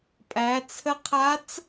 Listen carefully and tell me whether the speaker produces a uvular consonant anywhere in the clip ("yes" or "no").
yes